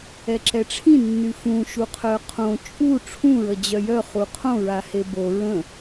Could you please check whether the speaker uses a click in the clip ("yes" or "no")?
yes